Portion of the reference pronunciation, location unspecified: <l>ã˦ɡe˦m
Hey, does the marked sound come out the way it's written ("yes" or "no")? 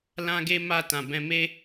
yes